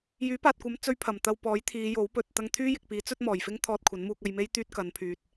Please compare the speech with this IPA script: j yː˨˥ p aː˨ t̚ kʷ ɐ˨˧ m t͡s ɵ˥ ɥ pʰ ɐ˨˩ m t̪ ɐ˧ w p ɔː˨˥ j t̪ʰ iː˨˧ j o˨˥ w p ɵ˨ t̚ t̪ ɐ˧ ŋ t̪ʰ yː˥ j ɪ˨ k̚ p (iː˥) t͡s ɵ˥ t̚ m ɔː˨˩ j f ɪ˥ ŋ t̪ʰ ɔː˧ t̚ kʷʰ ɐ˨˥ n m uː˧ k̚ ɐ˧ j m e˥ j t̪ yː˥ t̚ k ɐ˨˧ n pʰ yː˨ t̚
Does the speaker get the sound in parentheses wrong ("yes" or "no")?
yes